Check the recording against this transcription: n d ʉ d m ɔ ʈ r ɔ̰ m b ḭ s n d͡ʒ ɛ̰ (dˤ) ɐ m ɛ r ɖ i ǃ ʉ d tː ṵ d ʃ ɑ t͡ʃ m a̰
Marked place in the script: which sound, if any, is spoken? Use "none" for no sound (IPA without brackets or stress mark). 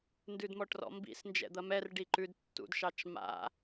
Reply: d̪